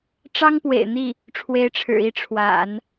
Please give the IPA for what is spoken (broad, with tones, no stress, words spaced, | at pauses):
ʈ͡ʂɑ˥ŋpwḛ˨˩ɪ̯ n̪i˥˩ | ʈ͡ʂʰwe˧˥ɪ̯ʈ͡ʂʰɻ̩˨˩i˥˩ ʈ͡ʂʰwa̰˨˩˦n